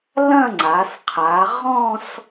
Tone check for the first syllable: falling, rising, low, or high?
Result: falling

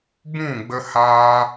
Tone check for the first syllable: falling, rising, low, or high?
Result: falling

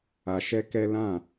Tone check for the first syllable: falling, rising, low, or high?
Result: low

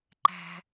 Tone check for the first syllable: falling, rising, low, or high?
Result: high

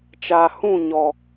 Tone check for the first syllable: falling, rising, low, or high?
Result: low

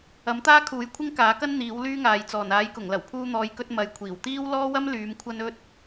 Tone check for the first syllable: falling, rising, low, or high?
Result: rising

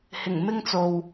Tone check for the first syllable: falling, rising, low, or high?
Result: low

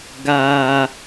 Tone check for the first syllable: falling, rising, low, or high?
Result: high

